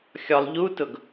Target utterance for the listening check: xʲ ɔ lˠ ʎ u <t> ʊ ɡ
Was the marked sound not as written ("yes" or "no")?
no